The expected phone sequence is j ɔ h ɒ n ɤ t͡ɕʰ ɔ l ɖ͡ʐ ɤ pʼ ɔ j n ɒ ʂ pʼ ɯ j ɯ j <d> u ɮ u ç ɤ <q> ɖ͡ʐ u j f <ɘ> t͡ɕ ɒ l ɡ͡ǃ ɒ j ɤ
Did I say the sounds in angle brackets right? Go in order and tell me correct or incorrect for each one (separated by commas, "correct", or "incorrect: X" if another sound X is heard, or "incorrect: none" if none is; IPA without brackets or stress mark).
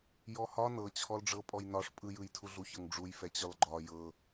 incorrect: tʰ, incorrect: ŋ, incorrect: ɛ